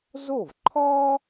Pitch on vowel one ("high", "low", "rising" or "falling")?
falling